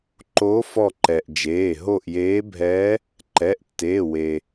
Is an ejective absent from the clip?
yes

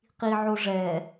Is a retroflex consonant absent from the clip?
no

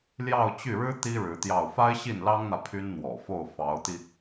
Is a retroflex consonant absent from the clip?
no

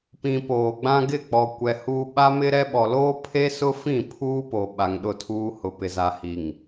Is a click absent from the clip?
yes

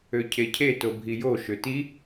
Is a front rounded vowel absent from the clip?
no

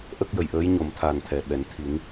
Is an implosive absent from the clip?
no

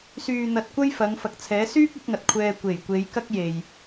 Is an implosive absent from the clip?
yes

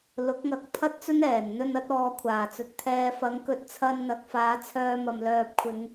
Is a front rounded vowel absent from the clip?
no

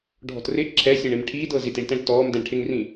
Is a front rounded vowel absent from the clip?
yes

